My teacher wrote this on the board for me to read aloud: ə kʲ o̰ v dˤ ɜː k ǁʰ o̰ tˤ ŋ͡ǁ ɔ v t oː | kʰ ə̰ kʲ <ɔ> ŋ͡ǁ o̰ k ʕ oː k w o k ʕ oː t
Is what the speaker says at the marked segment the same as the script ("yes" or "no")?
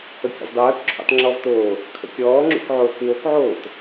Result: no